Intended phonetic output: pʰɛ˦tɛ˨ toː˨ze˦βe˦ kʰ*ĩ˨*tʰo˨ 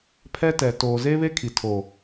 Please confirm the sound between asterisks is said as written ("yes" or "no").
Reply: no